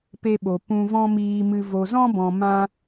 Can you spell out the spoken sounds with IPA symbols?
pe˦ɓo˨ pũ˧vɔ̃˦miː˧mɨ˧ vo˨zɔ̃˦bɔ̃˨ mã˧

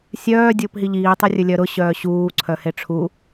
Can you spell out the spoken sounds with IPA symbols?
sʲœː dʲʊːpɦiʎiː tˤurʲɵlʲœɾʊ ɕœːɕuː ǀʰœheʈ͡ʂʰu

